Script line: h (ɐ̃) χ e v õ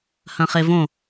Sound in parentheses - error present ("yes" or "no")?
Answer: no